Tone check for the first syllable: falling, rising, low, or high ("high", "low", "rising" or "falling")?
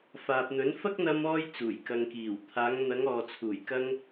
low